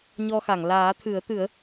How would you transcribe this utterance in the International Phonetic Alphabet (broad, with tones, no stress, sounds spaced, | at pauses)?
ɲ ɔ˧ x a˨˩˨ ŋ l aː˨˩˦ t̪ʰ ɨ˨˩˦ ə̯ t̪ ɨ˨˩˦ ə̯